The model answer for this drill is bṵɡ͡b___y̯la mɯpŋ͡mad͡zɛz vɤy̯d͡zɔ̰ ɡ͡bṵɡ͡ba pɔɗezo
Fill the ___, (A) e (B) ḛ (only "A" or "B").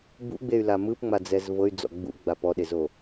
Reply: A